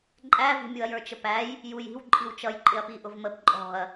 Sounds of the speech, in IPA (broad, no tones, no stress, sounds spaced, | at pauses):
ǃʼ æ v i̤ mʲ u ɐ̯ j ə˞ t͡ʃ ə p æ j | j u j i̤ w ǃʼ i w t͡ʃ ʌ j ǃʼ ɪ ɐ̯ p i ʔ ʊ v m ə p ǃʼ ɔ̤ ɐ̯